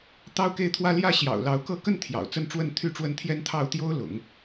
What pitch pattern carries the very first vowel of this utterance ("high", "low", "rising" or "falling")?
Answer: falling